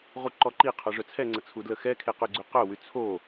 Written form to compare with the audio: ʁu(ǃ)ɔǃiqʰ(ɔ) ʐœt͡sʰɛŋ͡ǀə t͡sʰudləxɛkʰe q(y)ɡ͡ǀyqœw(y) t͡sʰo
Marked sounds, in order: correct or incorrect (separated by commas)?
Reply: correct, correct, correct, correct